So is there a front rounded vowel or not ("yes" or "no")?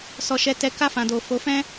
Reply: no